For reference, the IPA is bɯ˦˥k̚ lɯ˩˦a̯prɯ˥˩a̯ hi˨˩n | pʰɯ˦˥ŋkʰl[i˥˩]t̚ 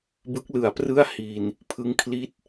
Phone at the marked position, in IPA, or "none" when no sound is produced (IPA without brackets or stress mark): i˥˩